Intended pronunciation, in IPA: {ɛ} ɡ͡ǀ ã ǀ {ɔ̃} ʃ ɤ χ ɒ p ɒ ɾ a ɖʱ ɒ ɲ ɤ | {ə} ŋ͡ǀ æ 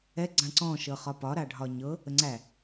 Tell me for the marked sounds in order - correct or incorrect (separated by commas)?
correct, correct, correct